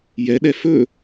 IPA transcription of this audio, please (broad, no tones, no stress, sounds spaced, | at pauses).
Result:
j ɛ ɗ ɛ f ɵ